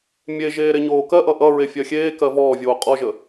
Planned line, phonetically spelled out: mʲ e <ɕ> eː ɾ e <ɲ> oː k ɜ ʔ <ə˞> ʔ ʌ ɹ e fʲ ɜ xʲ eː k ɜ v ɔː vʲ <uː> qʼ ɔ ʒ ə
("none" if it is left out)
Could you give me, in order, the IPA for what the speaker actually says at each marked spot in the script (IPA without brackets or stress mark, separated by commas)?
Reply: ʒ, ɲ, ʌ, oː